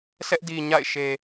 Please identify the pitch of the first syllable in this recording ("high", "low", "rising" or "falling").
high